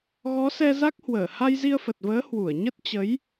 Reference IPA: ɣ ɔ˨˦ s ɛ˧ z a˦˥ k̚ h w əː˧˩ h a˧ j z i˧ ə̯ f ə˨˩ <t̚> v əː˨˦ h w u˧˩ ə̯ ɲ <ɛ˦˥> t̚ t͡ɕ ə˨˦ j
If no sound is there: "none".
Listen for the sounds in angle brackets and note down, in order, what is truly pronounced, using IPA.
t̚, ə˦˥

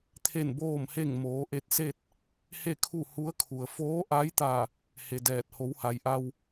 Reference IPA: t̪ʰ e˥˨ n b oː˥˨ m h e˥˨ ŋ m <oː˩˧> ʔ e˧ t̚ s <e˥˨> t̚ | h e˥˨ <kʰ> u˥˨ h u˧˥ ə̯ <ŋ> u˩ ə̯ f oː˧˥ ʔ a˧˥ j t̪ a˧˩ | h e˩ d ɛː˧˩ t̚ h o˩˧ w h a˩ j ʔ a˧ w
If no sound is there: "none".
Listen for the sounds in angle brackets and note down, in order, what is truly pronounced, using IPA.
oː˩˧, e˥˨, kʰ, kʰ

